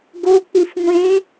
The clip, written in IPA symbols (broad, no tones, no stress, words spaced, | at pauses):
ɡo k͡pifŋʷẽ